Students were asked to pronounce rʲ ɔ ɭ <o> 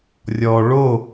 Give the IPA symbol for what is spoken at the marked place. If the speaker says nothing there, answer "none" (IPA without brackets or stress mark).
o